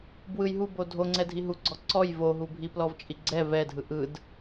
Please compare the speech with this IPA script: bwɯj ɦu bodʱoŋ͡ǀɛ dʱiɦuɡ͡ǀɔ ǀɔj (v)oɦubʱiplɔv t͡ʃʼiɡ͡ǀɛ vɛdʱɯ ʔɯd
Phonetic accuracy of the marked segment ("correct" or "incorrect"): correct